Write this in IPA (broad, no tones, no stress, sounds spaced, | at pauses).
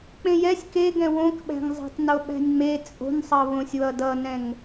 k͡p ẽ j ɛ sʲ k e ɡ ɛ̃ w õ k ɓ æ̤ ŋ zˤ æ̤ tˤ n o ɓ æ̤ nʲ ŋ͡m e t͡sʼ o̤ n sˤ ʌ β õ sʲ w ʌ d ʌ n ɛ̃ ŋ